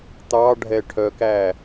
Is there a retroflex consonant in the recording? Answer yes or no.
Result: yes